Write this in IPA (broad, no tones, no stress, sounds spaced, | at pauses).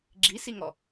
ɡ͡ǁ i s i ŋ ɔ